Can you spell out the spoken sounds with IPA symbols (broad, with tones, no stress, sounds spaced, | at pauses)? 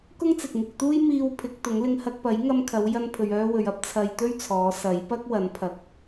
k ʊ˥ ŋ t͡s ɪ˨ k̚ ŋ ɪ˧ k̚ t̪ uː˥ j m iː˧ w pʰ ɪ˨˥ k̚ t̪ ʊ˨˥ ŋ l ɪ˧ ŋ h ɐ˧ k̚ p ɐ˨˥ j ŋ ɐ˧ m kʰ ɐ˨˧ w j ɐ˧ n pʰ ɵ˨ ɥ œː˧ w ɵ˨ ɥ ɐ˨˥ p̚ t͡sʰ ɐ˧ j t̪ ɵ˥ ɥ t͡sʰ ɔː˨˧ s ɐ˨˥ j p ɐ˥ k̚ w ɐ˨˥ n pʰ ɐ˨˥ k̚